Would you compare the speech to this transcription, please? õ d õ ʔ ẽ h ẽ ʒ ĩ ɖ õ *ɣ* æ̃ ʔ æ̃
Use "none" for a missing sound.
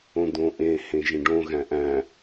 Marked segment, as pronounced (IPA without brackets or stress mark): ɣ